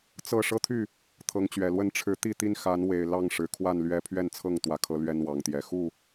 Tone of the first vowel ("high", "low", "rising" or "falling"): falling